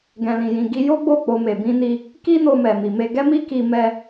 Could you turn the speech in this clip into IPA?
ɡɛ̃˨lĩ˨jĩ˨ ɡi˧jo˦ ɡ͡bo˦˨k͡po˧ me˨bĩ˧ni˧ | ki˦no˧mɛ˨ mi˨me˧ɡɛ˦ mi˦ki˧ mɛ˧

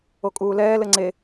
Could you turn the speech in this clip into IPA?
okʼuːlɛːlɘ ŋ͡ǀe

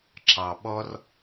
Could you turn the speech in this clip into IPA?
ǁɑ ɓɔr

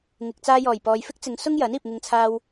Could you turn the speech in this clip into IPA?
ŋɪ˨k̚ t͡saː˧jɔː˨˩j pɔː˨jfɪ˥k̚t͡sɪ˨˧ŋsʊ˥ŋ jɐ˨˥niː˨p̚ŋɪ˧ŋt͡sʰaː˧w

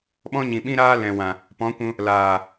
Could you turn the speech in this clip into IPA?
ɓɔ̃˦ɲĩ˨ɓĩ˦ ɾaː˦lɛ̃˨wã˨ | pɔ̃˨˦kʷũ˧ | laː˨

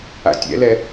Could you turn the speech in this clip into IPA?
a̰tʲɛ̰lɛ

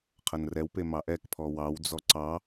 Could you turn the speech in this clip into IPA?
qʰɐnrɛwpe mɑʔɛkpʰɔ wɑwd͡zɔ ǀɑ

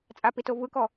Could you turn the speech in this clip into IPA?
t͡sʼapito vɯkɔ

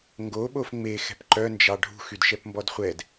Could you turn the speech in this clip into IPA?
ŋɡoɓof ŋ͡mexɛ̤p ǃœnd͡ʒɑ ɖʱṳxydʃɛpmbɔd χʷɛd

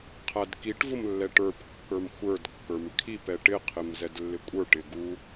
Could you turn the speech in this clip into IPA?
qʰædkiʈ vʊmlːɛʈə˞p kːə˞mxʷə˞d kːə˞mkʰip ɛʈɪ qʰɪmzɛdlːɪkʷʼə˞ ʈɪɡu

